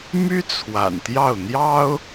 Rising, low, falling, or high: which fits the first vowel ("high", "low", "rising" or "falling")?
high